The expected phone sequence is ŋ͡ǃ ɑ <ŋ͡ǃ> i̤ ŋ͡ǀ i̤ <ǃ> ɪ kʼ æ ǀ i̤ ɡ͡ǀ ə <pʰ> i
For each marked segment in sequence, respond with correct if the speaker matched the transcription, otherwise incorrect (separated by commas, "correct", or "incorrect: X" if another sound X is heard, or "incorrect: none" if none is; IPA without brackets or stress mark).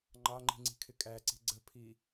correct, incorrect: kʰ, correct